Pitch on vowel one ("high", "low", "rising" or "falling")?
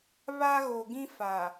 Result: high